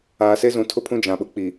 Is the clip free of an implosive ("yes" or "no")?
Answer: no